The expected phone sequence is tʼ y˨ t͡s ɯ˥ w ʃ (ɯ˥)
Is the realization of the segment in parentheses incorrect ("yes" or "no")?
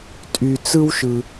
yes